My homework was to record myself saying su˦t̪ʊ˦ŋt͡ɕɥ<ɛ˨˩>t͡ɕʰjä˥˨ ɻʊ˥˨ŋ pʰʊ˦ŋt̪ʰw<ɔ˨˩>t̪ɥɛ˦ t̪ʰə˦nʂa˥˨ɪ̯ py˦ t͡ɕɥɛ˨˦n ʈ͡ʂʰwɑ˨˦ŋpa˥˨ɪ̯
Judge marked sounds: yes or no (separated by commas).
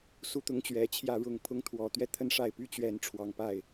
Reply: yes, yes